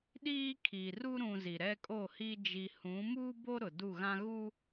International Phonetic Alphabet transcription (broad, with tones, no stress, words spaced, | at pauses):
ɗiː˦kʰiː˨ru˦ ɾũ˨ zi˨ɾɛ˦kʼo˦˨hiː˦ d͡ʒi˨hũ˨˦muː˦ bo˦ ɾʊ˨du˦˨ɣã˦ɣu˦